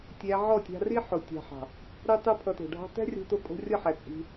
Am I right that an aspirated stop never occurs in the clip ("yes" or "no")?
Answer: no